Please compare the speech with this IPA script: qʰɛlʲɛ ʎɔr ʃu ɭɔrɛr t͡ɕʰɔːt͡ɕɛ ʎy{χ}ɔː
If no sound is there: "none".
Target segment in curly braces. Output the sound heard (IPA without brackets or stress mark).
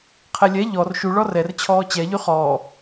χ